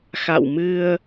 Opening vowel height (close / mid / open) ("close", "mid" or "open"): open